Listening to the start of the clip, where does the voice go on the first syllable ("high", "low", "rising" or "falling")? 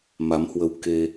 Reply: rising